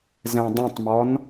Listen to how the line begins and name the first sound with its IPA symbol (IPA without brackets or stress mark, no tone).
z